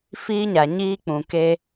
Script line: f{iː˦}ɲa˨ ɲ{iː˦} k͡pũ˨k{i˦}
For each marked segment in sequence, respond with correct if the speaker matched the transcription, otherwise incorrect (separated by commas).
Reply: correct, correct, incorrect